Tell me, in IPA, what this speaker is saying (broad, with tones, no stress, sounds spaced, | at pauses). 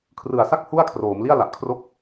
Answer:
kʰ r ɯ˨˩ a̯ s a˥˩ k̚ h u˥˩ a̯ kʰ r oː˩˦ m l i˥˩ a̯ l a˨˩ ʔ kʰ r o˥˩ k̚